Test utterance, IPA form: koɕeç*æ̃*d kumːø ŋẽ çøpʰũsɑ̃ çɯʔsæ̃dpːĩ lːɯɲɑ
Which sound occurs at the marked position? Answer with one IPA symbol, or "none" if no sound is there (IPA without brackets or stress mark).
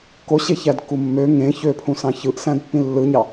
æ